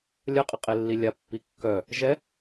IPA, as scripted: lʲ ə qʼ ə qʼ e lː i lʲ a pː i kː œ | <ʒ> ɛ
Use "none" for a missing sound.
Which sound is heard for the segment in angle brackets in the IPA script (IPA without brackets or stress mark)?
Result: ʒ